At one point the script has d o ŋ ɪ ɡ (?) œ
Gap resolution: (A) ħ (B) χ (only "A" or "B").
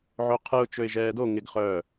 B